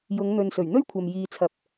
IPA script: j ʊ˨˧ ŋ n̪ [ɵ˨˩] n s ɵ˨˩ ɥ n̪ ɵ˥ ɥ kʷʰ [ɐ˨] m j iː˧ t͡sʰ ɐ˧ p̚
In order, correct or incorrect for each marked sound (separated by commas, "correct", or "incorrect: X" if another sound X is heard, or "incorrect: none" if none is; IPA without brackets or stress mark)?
incorrect: ɵ˨, correct